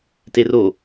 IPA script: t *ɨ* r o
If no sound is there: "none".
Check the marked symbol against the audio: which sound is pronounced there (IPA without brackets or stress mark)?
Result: e